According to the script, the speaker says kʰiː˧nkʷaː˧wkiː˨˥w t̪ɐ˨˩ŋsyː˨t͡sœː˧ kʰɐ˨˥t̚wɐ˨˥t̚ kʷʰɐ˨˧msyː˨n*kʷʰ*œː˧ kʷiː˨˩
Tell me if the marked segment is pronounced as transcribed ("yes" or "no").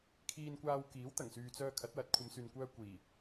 no